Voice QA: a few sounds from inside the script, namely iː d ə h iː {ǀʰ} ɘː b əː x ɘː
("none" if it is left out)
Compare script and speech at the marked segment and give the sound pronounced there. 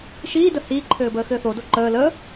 ǃʰ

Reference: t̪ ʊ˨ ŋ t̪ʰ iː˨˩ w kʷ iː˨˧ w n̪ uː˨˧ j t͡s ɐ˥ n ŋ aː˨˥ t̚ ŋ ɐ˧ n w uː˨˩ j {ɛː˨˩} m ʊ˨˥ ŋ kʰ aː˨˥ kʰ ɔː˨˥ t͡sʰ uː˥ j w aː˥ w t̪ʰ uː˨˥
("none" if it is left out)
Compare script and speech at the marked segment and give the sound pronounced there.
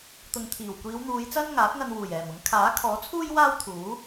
ɛː˨˩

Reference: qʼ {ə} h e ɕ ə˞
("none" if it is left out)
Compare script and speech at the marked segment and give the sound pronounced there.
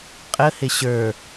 ə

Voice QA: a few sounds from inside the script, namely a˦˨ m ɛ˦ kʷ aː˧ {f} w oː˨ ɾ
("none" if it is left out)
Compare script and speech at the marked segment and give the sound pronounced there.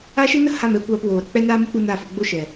p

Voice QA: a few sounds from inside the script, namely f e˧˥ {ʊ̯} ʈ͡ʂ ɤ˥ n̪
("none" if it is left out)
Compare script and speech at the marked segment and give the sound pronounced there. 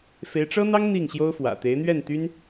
ɪ̯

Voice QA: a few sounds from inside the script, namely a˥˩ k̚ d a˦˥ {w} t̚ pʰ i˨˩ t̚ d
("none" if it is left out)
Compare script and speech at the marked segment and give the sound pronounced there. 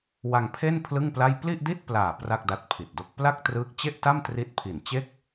none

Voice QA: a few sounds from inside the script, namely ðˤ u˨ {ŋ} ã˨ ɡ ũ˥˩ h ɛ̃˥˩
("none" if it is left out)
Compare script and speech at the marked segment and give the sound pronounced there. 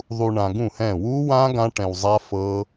ɳ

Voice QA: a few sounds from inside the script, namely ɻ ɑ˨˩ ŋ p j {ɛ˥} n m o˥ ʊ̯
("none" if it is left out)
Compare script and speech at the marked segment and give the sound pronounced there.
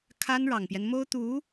ɛ˦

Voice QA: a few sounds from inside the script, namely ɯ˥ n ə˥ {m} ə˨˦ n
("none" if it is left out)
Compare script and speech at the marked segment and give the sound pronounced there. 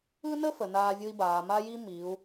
f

